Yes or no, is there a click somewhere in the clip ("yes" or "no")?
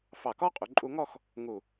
yes